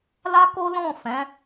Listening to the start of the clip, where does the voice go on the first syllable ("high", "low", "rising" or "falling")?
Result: high